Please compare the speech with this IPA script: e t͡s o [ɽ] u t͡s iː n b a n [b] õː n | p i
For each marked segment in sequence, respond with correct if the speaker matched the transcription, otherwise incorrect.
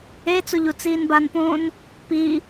incorrect, incorrect

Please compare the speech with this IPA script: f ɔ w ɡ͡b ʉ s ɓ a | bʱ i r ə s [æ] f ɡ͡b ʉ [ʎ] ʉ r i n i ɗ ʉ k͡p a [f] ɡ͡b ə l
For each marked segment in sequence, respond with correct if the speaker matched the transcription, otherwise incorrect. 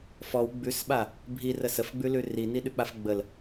incorrect, incorrect, correct

